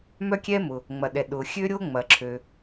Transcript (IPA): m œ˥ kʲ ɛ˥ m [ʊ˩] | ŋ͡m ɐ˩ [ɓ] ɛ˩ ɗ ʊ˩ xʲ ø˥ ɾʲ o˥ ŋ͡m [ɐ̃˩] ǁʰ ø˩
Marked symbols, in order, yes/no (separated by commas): yes, no, no